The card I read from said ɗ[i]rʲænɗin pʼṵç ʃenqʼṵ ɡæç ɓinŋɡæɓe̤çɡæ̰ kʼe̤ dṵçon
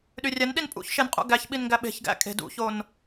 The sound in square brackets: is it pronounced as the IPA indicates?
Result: no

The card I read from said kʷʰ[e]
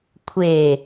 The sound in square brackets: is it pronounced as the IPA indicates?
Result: yes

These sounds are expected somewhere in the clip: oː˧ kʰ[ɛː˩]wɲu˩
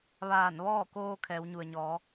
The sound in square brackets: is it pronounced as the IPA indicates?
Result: no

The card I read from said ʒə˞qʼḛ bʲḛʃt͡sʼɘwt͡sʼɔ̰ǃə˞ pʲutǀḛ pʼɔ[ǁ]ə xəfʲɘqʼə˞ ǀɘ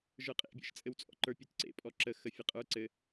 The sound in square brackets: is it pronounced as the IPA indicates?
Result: yes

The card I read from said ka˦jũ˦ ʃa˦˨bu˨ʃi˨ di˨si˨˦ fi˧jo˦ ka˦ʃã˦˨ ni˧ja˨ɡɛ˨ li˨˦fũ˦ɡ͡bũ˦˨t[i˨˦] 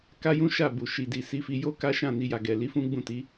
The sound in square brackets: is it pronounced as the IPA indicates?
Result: yes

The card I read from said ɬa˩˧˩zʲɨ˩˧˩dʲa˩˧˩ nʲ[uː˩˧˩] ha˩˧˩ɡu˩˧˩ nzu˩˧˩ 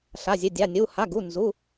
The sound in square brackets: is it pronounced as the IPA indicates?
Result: no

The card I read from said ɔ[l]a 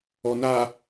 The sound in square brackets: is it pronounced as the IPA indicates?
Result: no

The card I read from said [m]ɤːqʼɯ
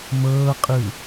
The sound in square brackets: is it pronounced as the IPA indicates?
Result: yes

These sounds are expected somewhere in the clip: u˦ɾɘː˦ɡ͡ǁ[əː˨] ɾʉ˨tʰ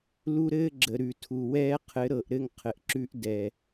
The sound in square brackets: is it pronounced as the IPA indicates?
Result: no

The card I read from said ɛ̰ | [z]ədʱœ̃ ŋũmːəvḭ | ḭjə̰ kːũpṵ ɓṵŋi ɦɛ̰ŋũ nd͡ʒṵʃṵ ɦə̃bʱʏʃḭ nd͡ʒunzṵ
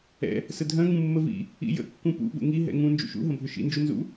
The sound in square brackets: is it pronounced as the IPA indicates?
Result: no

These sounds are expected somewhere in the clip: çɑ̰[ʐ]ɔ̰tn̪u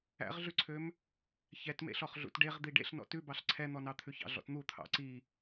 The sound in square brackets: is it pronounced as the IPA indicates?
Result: no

